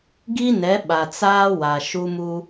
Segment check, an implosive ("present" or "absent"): present